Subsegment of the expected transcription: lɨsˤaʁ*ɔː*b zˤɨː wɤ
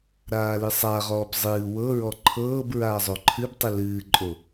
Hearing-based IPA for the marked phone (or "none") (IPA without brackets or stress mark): ɔː